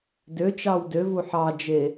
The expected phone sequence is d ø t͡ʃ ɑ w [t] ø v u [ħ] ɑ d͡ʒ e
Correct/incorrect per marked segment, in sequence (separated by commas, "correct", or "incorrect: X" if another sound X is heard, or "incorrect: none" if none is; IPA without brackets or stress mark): incorrect: d, correct